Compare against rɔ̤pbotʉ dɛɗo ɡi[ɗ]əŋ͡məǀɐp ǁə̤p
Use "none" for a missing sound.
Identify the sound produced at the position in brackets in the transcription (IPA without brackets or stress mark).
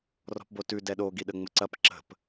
ɗ